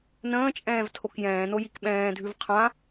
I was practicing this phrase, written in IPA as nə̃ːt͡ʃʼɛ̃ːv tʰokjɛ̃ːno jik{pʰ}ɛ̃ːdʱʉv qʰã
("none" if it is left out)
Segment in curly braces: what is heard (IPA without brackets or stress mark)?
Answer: ɓ